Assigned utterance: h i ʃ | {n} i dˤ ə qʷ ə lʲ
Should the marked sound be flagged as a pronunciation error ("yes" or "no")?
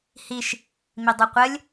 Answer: yes